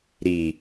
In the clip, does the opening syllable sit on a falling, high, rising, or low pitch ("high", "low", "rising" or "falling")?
low